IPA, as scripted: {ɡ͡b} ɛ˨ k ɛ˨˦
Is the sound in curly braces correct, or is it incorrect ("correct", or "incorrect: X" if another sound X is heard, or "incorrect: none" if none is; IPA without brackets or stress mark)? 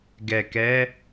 incorrect: ɡ